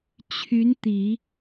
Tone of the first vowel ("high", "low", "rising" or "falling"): rising